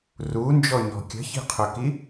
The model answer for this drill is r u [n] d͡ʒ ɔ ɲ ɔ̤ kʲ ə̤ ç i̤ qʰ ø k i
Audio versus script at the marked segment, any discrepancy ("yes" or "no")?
no